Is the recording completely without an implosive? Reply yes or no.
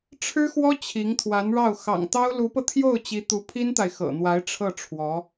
yes